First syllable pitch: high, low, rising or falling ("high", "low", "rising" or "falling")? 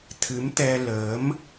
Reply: rising